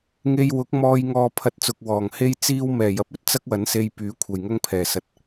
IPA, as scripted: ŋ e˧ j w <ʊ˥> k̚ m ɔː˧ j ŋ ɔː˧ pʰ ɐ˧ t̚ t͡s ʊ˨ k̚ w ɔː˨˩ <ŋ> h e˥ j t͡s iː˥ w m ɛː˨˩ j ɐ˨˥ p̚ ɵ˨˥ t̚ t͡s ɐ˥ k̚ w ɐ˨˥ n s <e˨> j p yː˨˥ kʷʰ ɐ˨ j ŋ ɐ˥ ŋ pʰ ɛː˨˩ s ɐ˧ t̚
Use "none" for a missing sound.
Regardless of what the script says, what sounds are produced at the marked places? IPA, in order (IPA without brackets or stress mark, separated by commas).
ʊ˨˥, ŋ, e˧